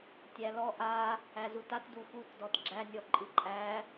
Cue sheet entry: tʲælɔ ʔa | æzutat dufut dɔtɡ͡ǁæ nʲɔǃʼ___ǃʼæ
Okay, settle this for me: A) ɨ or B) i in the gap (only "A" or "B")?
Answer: A